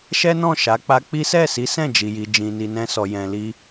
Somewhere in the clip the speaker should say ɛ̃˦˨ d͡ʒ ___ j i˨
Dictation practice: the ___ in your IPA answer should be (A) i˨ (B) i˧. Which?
A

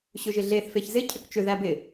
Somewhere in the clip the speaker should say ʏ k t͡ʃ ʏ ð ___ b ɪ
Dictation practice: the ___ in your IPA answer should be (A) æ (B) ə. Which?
A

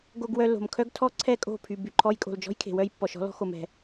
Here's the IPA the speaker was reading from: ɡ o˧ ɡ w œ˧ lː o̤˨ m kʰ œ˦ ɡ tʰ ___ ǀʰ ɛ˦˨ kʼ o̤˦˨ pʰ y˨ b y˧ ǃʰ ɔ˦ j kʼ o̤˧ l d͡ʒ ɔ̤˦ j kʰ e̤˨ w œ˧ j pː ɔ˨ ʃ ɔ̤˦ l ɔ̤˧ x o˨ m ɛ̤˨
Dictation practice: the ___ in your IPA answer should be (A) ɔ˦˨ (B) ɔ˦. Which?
B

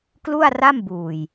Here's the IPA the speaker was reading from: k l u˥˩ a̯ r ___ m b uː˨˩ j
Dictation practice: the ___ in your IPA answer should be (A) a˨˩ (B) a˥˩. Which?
B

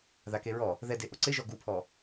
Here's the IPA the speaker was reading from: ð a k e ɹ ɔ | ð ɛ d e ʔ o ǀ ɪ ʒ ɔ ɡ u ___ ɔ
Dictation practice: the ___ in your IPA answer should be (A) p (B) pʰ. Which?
B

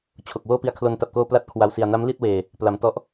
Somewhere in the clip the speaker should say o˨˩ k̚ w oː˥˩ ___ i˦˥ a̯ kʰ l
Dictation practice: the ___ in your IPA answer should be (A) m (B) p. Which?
B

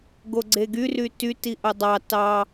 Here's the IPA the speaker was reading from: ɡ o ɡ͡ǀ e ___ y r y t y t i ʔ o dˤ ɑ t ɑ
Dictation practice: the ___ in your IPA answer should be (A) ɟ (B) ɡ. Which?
B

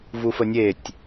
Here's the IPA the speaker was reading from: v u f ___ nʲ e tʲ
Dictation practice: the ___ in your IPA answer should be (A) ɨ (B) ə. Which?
B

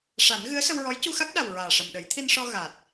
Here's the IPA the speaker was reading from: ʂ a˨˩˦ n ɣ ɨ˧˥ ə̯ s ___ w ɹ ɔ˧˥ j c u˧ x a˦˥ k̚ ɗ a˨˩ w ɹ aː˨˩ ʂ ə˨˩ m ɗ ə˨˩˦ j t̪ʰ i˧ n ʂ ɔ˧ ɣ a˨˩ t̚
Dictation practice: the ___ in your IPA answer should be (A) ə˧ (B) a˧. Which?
A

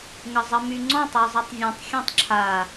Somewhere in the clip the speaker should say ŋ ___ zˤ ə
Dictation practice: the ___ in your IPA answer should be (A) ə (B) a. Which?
A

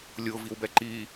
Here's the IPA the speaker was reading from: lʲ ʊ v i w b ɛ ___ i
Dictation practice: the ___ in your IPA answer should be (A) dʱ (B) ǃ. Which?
B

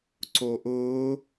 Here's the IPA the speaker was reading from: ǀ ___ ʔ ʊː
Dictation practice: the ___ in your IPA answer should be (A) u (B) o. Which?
B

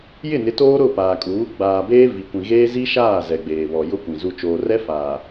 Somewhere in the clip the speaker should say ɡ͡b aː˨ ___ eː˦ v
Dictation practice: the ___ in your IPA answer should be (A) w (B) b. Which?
B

